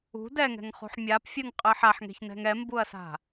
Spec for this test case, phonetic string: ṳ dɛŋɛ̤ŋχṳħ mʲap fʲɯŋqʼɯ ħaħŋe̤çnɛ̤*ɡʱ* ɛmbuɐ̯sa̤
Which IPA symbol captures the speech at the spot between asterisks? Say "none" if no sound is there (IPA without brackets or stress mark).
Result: ŋ